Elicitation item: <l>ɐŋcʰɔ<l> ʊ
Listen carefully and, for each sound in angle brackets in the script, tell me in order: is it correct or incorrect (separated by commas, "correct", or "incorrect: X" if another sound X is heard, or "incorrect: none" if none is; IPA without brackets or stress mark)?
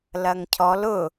correct, correct